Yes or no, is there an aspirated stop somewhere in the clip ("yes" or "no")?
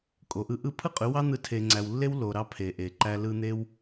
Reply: yes